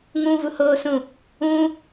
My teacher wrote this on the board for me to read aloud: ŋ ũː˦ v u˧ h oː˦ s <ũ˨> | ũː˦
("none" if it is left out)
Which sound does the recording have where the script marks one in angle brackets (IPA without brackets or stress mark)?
ũ˦˨